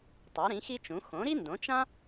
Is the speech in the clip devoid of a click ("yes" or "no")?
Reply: yes